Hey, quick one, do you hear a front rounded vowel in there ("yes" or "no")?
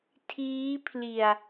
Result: no